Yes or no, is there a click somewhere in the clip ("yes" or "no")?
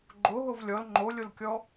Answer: yes